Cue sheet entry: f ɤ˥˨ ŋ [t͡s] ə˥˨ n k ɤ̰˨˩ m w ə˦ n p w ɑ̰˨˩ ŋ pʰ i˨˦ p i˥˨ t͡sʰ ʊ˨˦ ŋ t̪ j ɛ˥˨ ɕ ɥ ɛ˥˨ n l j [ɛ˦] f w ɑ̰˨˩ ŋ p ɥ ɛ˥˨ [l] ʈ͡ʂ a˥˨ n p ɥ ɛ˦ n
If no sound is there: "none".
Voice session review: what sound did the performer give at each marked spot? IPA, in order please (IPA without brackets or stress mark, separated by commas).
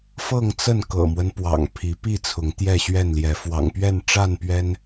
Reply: t͡s, ɛ˨˦, n